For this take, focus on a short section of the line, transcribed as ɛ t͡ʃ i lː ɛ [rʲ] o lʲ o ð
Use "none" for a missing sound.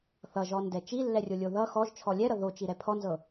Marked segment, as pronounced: rʲ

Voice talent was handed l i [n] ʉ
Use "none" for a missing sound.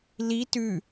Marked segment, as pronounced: t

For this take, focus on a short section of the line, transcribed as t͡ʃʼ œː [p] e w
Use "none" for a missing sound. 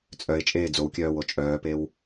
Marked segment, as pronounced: p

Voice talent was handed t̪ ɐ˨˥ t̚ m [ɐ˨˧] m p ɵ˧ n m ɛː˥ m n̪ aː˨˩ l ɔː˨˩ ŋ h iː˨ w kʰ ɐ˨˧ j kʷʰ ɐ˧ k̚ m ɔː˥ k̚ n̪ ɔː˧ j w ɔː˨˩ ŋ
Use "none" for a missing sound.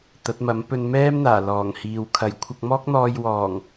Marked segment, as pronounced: ɐ˨˥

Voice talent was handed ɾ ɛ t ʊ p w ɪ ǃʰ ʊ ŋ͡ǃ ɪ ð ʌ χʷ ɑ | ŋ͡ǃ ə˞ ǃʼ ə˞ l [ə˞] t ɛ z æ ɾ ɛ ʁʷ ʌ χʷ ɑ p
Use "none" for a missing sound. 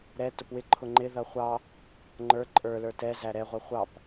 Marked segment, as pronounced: ə˞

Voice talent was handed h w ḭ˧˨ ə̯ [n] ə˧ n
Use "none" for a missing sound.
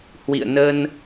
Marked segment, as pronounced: n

